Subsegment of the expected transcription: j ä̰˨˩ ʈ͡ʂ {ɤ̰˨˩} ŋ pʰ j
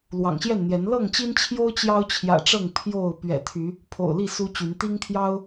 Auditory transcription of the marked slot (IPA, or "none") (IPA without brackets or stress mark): ɤ˥˨